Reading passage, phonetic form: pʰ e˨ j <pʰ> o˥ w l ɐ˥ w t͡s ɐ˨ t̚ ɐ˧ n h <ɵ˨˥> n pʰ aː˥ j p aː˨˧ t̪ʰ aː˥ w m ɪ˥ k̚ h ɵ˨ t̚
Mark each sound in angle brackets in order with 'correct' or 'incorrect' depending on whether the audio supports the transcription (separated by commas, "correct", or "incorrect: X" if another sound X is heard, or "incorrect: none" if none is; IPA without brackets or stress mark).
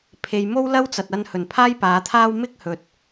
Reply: incorrect: m, incorrect: ɵ˨˩